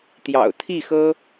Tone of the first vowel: low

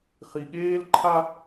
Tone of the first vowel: low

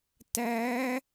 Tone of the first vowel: rising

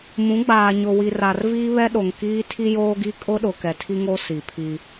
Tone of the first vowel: rising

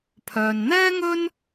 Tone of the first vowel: low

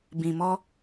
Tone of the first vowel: low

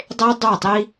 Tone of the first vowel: high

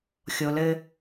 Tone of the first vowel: low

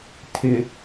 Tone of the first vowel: low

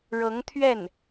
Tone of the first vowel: rising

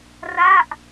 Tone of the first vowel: falling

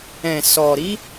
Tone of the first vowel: low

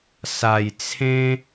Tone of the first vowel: low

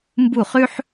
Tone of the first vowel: falling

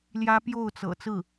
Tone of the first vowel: high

